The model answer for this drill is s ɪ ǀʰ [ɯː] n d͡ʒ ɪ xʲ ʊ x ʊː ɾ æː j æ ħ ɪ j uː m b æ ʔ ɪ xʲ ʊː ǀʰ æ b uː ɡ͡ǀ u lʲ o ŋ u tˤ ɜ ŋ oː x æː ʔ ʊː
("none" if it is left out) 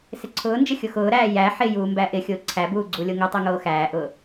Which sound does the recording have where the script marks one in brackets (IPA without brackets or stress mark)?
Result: ʊː